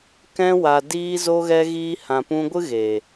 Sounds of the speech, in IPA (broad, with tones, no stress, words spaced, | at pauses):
kɛ̃˧wa˨ diː˧ zo˧ɣɛ˧ ɣiː˧hã˨pũ˧ɡʷɨ˦ ɣe˨